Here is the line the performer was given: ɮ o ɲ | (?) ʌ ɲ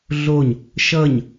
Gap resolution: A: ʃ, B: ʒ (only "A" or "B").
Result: A